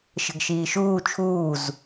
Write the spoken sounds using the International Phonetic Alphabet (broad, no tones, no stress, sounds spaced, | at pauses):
ʃ ə̤ ɡ ʃ iː ʃ uː t͡ʃʰ uː z